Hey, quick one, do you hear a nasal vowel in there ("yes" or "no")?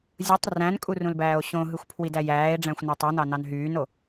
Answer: yes